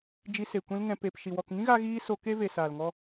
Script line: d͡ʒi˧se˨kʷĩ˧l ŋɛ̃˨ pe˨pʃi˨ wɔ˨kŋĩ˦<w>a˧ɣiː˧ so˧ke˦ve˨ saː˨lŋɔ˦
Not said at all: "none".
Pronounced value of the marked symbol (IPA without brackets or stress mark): ɣ